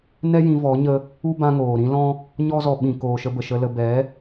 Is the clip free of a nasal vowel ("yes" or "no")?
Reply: no